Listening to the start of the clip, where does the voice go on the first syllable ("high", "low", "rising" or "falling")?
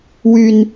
high